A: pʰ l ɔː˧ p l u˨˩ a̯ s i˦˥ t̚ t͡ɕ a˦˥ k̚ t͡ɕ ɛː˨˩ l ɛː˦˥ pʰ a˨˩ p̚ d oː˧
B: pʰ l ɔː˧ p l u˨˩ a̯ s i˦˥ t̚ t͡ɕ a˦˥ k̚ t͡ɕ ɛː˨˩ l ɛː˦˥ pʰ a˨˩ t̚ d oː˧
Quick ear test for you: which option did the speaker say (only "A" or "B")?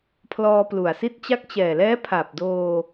A